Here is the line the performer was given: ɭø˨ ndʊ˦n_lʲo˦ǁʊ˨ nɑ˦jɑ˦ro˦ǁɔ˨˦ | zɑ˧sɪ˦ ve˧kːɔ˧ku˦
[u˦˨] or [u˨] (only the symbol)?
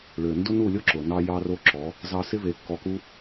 u˦˨